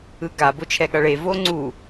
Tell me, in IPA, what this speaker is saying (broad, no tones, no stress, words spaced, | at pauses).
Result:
ɯɡa bot͡ʃʰɛɠʌɭe voŋ͡ǀu